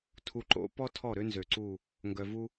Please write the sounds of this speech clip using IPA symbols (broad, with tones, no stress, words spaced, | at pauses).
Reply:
tʰu˨ǃo̰˦pɔ˦ tʰɔ˦˨ɾø˦ nzø˨ǀu˦˨ | ŋɡœ˨vu˦